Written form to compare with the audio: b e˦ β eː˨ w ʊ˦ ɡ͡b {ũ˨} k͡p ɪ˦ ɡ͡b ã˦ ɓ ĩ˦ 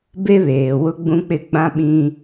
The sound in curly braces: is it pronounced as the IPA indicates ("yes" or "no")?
no